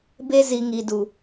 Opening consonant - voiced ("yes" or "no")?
yes